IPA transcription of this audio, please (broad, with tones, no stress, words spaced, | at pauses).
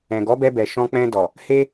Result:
ɛ̃˨ɡɔ˨˦bɛ˧bɛ˨ ʃɔ̃˧k͡pɛ̃˧dɔ˨ | he˦